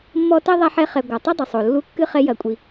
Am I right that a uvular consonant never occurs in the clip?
no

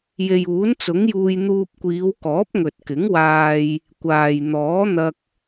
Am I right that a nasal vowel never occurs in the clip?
yes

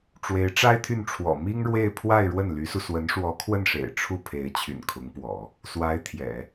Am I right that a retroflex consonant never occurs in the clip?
no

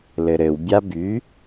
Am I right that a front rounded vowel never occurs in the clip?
no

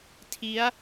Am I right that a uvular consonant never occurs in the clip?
yes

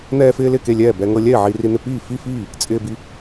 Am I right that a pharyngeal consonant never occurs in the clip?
no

